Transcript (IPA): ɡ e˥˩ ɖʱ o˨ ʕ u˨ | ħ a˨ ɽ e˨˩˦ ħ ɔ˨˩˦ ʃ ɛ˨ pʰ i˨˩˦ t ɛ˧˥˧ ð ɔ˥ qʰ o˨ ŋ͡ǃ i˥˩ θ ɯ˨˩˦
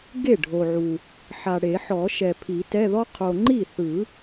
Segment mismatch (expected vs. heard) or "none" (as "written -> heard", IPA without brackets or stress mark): none